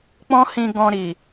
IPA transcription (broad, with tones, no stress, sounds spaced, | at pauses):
k͡p ɔ̃˦ h ĩ˧ ɡ ɔ̃˧ ɾ i˨